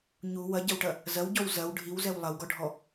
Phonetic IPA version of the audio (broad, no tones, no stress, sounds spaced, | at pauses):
ɲ u w ɐ ɟ ɐ w ʈ ɐ | z ɐ w ɟ ɔ w z ɐ w ɖʱ i w z ɛ w lˠ ɐ w ɡ ɔ ɖʱ ɔ